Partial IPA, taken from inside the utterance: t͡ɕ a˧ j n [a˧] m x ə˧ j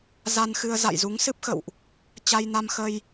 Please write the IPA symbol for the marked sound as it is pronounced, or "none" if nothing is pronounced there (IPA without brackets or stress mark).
a˧